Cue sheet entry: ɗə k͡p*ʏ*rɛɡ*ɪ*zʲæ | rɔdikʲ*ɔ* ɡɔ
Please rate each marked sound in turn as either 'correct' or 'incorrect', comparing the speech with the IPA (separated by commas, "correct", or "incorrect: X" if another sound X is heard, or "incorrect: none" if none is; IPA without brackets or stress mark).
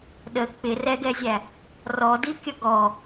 incorrect: ɪ, incorrect: ɛ, incorrect: ʌ